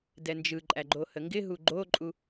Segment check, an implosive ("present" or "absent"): absent